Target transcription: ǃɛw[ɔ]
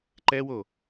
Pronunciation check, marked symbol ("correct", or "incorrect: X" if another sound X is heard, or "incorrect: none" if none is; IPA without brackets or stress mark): incorrect: o